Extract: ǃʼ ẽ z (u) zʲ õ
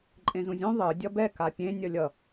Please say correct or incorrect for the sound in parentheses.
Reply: incorrect